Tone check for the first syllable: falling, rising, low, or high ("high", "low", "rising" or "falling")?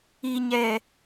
low